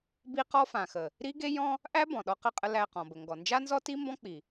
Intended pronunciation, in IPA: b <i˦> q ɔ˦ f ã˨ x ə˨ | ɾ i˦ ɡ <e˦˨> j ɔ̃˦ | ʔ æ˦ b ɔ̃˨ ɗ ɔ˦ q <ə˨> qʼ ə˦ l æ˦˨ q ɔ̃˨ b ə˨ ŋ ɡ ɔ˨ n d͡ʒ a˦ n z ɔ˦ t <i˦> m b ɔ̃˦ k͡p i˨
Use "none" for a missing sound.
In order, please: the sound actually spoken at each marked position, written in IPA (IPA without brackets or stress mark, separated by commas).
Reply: i˦, e˦, ə˦˨, i˦